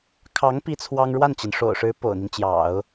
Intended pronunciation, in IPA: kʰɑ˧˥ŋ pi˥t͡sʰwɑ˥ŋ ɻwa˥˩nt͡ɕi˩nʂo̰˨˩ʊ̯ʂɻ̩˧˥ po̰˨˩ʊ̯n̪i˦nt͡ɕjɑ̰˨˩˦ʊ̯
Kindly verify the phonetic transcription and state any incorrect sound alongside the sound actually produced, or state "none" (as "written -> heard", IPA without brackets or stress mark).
none